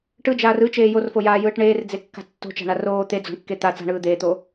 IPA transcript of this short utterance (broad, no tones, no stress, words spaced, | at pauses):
ʈɯd͡ʒaːr ɯt͡ʃeː jorfojaːjɯːʈ ɳeːrd͡zekːa̤ tːo̤t͡ʃa̤ɳa roː t̪ed͡zo̤ɳkːe t̪a t͡sa̤ɳɯː d̪eːt̪oː